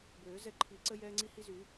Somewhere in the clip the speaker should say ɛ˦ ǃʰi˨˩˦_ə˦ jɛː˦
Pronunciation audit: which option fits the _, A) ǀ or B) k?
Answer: A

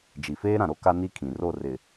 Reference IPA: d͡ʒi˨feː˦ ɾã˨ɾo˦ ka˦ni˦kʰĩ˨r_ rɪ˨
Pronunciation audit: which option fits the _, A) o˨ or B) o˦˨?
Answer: B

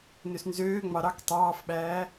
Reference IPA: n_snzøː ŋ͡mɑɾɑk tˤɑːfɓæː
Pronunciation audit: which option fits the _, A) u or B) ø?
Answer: B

